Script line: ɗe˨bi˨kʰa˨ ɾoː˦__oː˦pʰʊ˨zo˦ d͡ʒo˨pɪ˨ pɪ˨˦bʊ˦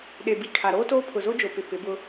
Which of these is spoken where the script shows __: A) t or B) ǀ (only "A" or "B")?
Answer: A